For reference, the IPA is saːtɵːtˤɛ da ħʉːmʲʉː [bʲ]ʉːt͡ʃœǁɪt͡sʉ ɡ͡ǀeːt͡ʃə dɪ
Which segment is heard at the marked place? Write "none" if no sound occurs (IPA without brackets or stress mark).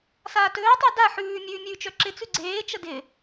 mʲ